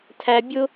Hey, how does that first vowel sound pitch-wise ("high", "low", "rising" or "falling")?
high